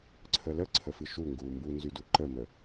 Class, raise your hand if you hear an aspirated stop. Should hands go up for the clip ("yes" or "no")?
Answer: yes